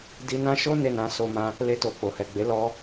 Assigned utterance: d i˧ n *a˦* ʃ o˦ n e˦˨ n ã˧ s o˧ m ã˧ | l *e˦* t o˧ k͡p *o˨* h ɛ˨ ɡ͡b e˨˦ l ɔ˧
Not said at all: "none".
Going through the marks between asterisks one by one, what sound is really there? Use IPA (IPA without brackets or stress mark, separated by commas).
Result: ã˦, e˦, o˨